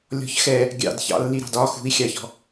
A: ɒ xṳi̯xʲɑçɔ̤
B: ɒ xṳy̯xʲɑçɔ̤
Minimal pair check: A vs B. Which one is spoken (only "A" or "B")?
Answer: A